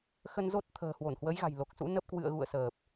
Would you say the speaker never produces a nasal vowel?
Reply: yes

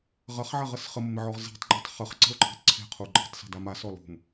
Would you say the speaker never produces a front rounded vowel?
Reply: no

